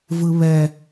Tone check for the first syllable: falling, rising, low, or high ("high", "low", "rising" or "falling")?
high